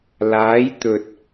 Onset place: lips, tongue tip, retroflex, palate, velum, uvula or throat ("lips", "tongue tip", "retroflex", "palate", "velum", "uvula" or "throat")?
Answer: tongue tip